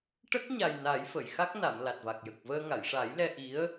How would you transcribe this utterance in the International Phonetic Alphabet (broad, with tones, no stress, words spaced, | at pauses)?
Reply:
ʈə˦˥k̚ɲa˨˩j na˨˩˦jfə˨˩˨jxa˦˥k̚na˨˩˨m la˨˩t̚va˨˩k̚jə˨˩k̚vəː˧ ŋa˨˩˨jʂa˨˩˦j lɛ˧ʔi˧˥ə̯